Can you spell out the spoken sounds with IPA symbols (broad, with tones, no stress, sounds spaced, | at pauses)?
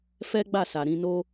f ɛ˦ ɡ͡b a˦˨ s a˨ ɾ ĩ˧ n o˦